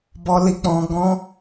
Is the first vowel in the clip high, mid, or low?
mid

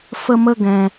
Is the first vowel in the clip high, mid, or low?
mid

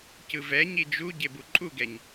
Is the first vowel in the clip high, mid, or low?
high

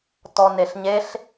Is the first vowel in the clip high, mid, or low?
mid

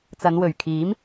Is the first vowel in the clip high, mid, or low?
low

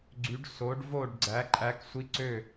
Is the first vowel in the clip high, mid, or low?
high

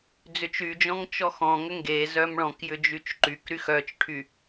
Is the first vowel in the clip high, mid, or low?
high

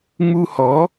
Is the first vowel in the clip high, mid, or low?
high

